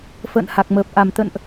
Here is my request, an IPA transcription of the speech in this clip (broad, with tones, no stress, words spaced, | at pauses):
fə̰ː˧˨nha˨˩k̚məː˨˩p̚ ʔa˨˩mt̪ə̰˧˨nʔ